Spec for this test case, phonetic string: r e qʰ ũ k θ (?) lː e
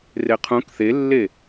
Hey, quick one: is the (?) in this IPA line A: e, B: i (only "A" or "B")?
A